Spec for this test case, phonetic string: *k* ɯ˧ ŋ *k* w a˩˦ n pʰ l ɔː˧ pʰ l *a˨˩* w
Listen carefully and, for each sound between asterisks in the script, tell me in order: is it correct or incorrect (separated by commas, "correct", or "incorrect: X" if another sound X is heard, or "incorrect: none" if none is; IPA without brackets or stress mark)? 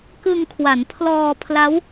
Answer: correct, incorrect: kʰ, incorrect: a˦˥